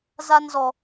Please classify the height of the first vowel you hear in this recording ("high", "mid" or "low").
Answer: low